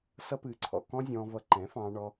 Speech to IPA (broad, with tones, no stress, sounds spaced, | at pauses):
s ʌ˦ p ɨː˧ ǀʰ ɔ̰˧ k ɔ̃˦ zʲ ɔ̃ː˧ v ʌ˧ ǃ ɛ̃˨˦ f ɑ̃ː˧ ɳ ɔ˧